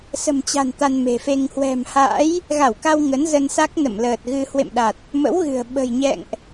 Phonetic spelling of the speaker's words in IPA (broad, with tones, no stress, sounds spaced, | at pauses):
s ə̤˨˩ m t͡ɕ a̤˨˩ n t̪ a˧ n m e̤˨˩ f e˧ ŋ h w ɛ̤˨˩ m h a̰˧˥ j | ɣ a˧˩ w k a˧ w ŋ ə˨˦ n z ə˧ n s a˦˥ k̚ n ə̰˧˨ m l əː˨˩ t̚ ɣ ɨ˧ h w ḛ˧˨ m ɗ a˨˩ t̚ | m ə̰˧˥ w ɣ ɨ̤˨˩ ə̯ ɓ ə̤˨˩ j ɲ ɛ̰˧˨ ŋ ʔ